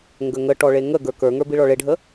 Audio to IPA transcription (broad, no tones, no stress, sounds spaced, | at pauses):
ŋ ɡ ə ŋ ə ʈ ɔ ɭ e ŋ ə ɡ ə˞ k ə˞ ŋ ə˞ b i ɭ ɔ ɭ e ɖʱ ə